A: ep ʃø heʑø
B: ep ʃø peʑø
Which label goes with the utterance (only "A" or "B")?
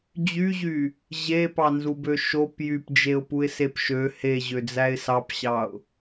A